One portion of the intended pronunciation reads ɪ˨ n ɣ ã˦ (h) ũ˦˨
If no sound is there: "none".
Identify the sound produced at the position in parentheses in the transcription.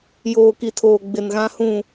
h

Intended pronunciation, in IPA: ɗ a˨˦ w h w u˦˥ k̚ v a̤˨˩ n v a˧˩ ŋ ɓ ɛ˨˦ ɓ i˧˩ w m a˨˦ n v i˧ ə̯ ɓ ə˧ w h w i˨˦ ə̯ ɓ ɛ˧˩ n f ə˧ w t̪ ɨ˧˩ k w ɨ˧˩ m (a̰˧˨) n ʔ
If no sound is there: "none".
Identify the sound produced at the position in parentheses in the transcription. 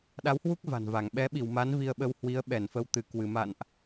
a̰˧˨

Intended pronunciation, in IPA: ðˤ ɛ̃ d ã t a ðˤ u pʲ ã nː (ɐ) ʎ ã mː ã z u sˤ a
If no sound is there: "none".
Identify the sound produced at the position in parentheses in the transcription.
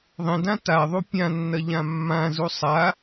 ɐ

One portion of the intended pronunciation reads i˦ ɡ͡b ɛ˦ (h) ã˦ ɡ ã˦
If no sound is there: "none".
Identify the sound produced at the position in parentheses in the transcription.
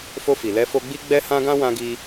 h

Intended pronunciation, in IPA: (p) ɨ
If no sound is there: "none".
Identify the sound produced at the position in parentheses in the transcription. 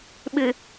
ɓ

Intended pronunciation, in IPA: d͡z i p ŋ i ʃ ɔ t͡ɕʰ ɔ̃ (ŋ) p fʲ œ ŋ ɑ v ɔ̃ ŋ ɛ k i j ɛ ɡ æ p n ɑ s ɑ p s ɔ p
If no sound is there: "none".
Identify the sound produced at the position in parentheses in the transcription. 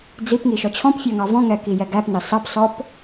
none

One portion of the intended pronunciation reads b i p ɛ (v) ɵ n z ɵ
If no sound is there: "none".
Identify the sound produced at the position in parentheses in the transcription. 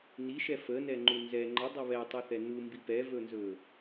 v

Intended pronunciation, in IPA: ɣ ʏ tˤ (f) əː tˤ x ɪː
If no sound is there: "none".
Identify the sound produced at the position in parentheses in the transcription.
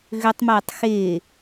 m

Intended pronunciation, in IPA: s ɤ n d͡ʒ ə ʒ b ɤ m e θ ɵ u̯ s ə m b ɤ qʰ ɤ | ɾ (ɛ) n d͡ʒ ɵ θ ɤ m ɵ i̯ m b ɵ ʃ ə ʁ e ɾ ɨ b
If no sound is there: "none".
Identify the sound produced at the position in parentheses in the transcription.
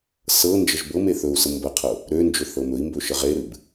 ø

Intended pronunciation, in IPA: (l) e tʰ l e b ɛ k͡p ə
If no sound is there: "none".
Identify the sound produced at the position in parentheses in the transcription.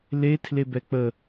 l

